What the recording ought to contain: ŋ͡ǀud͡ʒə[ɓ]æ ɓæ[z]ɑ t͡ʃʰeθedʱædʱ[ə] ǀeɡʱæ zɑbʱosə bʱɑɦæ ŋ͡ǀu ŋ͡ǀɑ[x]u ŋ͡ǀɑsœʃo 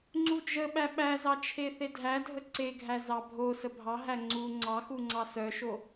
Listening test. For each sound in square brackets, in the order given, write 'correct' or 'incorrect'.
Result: correct, correct, correct, correct

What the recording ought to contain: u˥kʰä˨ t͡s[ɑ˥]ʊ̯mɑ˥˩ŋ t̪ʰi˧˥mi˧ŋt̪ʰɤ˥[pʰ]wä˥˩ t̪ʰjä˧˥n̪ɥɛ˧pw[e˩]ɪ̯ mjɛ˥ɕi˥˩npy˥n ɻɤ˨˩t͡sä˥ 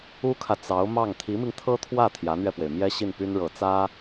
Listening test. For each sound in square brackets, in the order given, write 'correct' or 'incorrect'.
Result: incorrect: ɑ˧˥, incorrect: t̪ʰ, correct

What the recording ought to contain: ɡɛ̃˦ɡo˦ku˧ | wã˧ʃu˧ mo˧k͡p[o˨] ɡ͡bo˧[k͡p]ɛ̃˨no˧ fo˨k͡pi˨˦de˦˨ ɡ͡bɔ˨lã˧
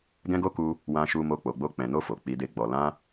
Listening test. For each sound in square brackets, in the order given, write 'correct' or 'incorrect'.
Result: correct, correct

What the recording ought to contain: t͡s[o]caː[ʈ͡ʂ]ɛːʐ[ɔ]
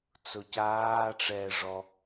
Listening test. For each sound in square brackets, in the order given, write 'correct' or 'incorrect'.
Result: correct, correct, correct

